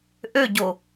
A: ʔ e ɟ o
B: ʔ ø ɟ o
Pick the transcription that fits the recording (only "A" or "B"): B